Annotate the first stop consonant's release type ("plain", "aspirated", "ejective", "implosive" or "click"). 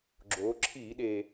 click